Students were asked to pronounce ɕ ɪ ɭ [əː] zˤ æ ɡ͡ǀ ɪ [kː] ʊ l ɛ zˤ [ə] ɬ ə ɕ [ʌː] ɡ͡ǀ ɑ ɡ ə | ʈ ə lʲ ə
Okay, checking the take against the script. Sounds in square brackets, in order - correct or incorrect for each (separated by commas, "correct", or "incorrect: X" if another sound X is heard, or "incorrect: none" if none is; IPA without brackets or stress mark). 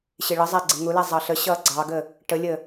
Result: incorrect: ə, incorrect: ŋ, incorrect: ɑ, correct